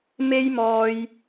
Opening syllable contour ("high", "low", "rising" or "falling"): high